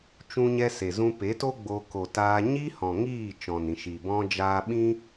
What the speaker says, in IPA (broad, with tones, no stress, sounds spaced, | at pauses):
t͡ʃ ũ˦ ɲ ɛ˦ s e˨ z ũ˧ p e˨˦ t o˦ ɡ͡b o˧ k o˨ t aː˧ ɲ i˦ h ɔ̃˨ ŋ iː˦˨ t͡ʃ ɔ̃˨ n ĩ˨ ʃ i˨ b ɔ̃˦ d͡ʒ aː˧ ɓ ĩ˦